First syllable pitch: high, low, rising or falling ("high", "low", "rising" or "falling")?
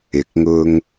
rising